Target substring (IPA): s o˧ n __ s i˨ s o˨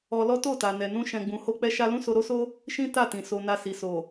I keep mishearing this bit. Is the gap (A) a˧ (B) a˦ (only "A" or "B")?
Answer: A